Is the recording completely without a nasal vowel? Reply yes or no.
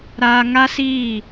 yes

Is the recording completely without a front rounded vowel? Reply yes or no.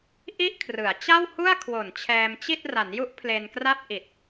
yes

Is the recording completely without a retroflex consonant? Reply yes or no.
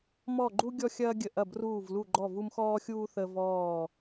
yes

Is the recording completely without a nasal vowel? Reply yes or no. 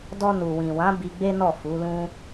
no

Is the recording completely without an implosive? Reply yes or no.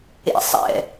yes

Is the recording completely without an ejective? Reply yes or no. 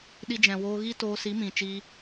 yes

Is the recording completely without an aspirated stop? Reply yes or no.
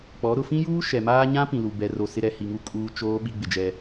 yes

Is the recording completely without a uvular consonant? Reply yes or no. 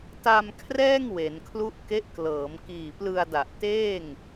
yes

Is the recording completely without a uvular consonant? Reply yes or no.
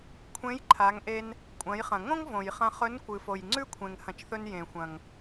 no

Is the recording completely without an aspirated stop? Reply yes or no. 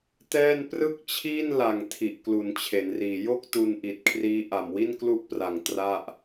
no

